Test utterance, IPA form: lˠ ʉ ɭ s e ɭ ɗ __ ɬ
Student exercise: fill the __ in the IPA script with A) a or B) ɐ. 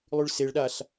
A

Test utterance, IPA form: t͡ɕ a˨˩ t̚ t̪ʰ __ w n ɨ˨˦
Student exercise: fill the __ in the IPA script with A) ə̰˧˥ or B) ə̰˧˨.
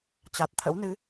A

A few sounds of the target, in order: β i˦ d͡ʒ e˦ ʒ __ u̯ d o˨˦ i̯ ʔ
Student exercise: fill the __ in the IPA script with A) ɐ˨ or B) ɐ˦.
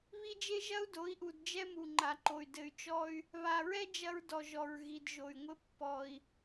B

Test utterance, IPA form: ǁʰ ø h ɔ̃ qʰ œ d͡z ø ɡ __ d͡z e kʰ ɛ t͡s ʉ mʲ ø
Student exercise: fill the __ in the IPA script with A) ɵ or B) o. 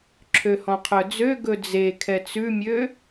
A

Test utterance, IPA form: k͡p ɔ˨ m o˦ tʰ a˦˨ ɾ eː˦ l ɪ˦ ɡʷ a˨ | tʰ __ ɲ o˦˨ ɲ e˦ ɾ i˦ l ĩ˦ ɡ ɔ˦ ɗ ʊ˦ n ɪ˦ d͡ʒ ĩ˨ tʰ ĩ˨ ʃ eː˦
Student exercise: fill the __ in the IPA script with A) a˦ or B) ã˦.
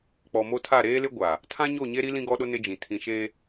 B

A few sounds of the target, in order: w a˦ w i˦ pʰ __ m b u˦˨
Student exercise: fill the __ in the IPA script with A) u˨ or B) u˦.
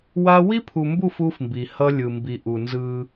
A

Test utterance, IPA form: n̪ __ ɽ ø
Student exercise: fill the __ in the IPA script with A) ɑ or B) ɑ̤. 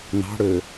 B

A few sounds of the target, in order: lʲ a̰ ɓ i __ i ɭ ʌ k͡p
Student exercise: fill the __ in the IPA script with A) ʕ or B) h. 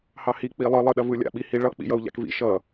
B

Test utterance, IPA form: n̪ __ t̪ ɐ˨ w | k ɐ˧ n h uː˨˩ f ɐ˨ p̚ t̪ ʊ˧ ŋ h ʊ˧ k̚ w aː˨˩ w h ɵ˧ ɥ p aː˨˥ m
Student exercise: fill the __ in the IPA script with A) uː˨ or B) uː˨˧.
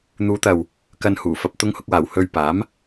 B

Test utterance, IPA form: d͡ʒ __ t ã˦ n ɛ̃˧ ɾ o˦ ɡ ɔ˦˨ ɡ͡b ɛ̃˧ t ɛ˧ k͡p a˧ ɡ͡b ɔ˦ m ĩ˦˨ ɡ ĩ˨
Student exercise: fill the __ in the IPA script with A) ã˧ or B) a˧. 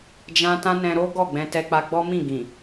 A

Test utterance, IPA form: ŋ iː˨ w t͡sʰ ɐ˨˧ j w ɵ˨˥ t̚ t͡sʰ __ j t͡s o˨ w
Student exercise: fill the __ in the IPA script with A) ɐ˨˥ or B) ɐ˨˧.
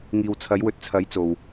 A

